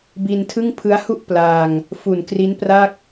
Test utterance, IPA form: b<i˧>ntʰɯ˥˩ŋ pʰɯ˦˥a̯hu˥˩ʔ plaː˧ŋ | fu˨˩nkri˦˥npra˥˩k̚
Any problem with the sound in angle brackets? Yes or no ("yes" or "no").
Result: no